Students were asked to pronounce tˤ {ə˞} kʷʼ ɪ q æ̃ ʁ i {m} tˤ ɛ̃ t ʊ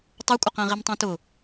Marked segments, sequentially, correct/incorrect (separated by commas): correct, correct